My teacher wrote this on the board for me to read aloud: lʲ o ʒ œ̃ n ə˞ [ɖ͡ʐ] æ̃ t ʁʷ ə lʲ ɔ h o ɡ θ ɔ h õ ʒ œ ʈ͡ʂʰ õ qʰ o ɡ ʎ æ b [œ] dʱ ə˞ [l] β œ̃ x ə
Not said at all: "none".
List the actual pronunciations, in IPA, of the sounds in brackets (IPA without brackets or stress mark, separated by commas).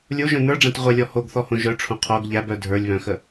ɖ͡ʐ, œ, lʲ